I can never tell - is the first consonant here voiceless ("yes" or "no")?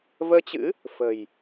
no